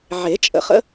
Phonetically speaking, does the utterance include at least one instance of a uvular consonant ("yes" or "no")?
yes